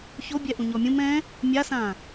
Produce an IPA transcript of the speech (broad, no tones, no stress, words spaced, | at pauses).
çobʲɛʔũɲɔ mʲũ mɛ̃ | mʲasã